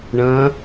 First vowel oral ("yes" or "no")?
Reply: no